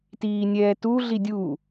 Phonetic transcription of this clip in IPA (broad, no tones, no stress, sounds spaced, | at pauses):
t iː nʲ ɛː t u ɮ i dʲ u